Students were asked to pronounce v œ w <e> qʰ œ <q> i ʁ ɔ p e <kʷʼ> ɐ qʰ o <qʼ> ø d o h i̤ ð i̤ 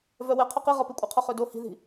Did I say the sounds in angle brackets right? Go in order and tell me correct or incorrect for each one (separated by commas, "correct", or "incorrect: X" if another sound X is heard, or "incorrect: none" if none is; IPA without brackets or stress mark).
correct, correct, correct, incorrect: χ